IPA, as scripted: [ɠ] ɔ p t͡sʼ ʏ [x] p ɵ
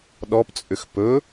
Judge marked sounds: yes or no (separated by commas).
no, yes